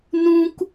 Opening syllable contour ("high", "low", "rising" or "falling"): high